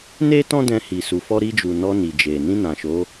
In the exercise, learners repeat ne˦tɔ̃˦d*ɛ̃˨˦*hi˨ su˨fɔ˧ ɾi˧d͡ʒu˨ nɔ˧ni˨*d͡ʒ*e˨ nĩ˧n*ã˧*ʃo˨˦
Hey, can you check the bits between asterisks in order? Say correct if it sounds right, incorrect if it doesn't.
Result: incorrect: ɛ̃˧, correct, incorrect: ã˨

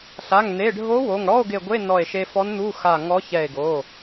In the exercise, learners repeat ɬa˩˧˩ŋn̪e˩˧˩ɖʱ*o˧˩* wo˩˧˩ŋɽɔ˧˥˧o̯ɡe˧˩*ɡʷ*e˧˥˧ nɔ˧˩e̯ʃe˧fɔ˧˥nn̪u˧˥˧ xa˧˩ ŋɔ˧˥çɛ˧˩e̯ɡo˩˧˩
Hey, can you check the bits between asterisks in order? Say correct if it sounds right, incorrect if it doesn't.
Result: incorrect: o˧˥, correct

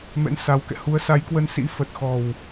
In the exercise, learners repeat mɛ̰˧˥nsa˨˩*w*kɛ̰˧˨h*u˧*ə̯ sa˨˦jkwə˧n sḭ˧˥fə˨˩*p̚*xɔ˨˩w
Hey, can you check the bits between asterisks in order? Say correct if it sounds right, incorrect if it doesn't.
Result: correct, incorrect: u˨˦, incorrect: t̚

